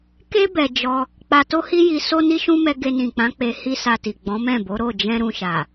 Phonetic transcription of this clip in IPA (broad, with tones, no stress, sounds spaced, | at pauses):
k e˦ b ɛ˧ d͡ʒ ɔ˧ | k͡p a˧ t o˦ h i˦ j i˧ s o˦ n i˦ ʃ ũ˦ m ɛ˧ ɡ e˧ n ĩ˨ k͡p ã˨˦ k͡p e˧ h i˦ s a˧ t i˨ ɡ͡b ɔ̃˨˦ m ɛ̃˦˨ b o˨˦ ɾ o˦˨ d͡ʒ ɛ̃˧ ɾ ũ˧ ʃ a˨